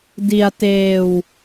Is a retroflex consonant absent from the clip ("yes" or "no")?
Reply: yes